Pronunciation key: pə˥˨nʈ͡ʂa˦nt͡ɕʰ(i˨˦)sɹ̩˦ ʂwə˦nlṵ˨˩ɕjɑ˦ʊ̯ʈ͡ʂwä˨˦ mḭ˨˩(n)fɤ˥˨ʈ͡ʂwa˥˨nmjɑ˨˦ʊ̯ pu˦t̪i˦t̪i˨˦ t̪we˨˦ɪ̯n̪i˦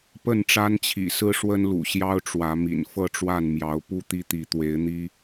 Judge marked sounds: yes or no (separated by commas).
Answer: no, yes